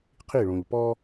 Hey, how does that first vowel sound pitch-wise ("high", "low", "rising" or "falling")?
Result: falling